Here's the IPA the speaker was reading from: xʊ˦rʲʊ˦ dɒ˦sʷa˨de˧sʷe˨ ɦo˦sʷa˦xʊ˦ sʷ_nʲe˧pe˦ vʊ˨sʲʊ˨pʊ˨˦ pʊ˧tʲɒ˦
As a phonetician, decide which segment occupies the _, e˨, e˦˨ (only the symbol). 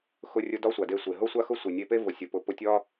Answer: e˨